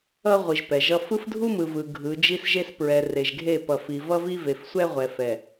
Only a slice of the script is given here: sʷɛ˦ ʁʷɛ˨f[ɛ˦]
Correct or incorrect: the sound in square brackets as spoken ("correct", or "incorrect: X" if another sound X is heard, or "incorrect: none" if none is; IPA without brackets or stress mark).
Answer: incorrect: ɛ˨